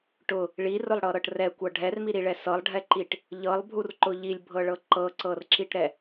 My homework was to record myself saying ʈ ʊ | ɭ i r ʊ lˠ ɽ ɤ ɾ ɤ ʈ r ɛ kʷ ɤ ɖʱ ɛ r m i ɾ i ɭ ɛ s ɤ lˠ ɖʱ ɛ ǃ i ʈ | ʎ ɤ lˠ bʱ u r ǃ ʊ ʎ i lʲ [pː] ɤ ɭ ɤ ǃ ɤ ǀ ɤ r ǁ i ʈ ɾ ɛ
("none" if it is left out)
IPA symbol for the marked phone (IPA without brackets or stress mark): bʱ